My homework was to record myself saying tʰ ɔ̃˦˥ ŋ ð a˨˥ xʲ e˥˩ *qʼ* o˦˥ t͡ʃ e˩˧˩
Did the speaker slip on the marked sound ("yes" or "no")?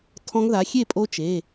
yes